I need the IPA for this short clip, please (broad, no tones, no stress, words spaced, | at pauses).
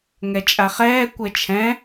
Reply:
ŋɛt͡ʃʼaχɛː kʷɛt͡ʃʰɛ̃